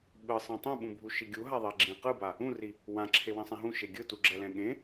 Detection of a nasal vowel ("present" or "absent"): present